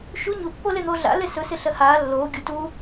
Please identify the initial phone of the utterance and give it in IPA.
ʃ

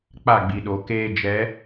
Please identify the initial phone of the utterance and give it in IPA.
k͡p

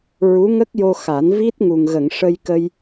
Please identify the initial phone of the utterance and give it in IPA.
ɹ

